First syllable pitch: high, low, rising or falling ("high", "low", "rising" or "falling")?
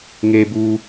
high